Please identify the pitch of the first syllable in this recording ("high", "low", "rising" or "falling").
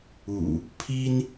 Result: low